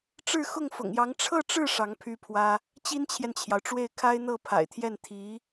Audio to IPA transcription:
ʈ͡ʂ ɻ̩˥˧ x ʊ˥˩ ŋ f ʊ̰˨˩ ŋ j ɑ˧˥ ŋ ʈ͡ʂʰ ɤ˥˧ ʈ͡ʂ ɻ̩˥˩ ʂ ɑ˧˥ ŋ pʰ y˥ pʰ w ä˥ | t͡ɕ i˥ n t͡ɕʰ j ɛ˨ n t͡ɕʰ j ɑ˩ ʊ̯ ʈ͡ʂ w e˥˩ ɪ̯ kʰ a˥ ɪ̯ n̪ ɤ˥˩ pʰ a̰˨˩ ɪ̯ t̪ʰ j ɛ˥˩ n t̪ʰ i˧˥

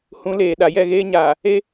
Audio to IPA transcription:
h ũ˨˦ l eː˨ ɗ a˨ j ɛ˦˨ ɣ eː˦ ɲ aː˨ | e˦

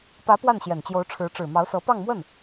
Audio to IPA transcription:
p ä˧˥ p w a˥˩ n ɕ j ɛ˨˩ n t͡ɕ j o˧˥ ʊ̯ ʈ͡ʂʰ ɻ̩˧˥ ʈ͡ʂ ɻ̩˨˩ m ɑ˧˥ ʊ̯ s ɤ˧˥ p ɑ˥˧ ŋ m w ə˥˩ n

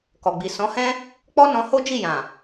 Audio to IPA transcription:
k ɔ˨ ɡ͡b i˨ s ɔ̃˨˦ h ɛ̃˦ | k͡p ɔ˦ n ɔ̃˧ h o˦ d͡ʒ i˦˨ j ã˨

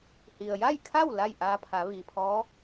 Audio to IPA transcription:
h i˩ ə̯ j a˥˨ j kʰ a˥˨ w l a˥˨ j ʔ aː˧ pʰ a˩˧ ʋ iː˩ pʰ ɔː˧˥

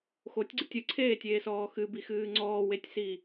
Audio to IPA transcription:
x o tʲ ɡ͡ǀ ɨ tʲ ɨ ǀʰ eː tʲ eː s ɔː x ɨ b i x ɨː ŋ͡ǀ ɔː w e tʲ s i

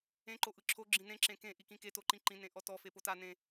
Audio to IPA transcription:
ẽ ǃ o ʔ ɯ ǁʰ o ɡ͡ǁ ĩ n ẽ ǁ ẽ k ẽ ʔ i k ĩ k e t o ǃ ĩ ǃ ĩ n ẽ ʔ ɔ t ɔ f e p o t a n ẽ

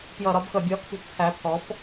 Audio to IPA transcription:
p j ʌ˧˩˧ ɾ ɒ˨˦ b x ʌ˧˩˧ ɡʲ ɒ˨˦ kʰ ṳ˨˦ p tʰ æ˨˦ pʰ ɔ˨˦ p

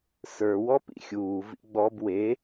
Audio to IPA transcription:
s ə˞ w ɔ p ḭ xʲ uː v ḭ ɡ͡b ɔ b w e

